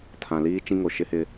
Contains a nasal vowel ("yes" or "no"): yes